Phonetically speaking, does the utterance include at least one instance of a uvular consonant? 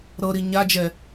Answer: no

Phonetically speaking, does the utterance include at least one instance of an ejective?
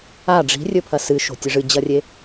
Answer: no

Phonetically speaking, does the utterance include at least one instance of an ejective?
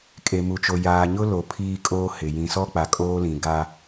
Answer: yes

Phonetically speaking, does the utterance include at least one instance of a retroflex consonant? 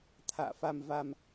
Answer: no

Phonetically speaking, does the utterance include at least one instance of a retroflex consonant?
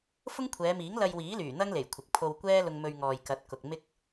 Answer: no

